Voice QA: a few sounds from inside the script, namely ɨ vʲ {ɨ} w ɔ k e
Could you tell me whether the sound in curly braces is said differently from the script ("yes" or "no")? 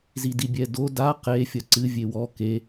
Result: yes